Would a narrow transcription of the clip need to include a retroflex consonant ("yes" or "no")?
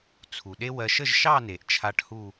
yes